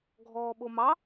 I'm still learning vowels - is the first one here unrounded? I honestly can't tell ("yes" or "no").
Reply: no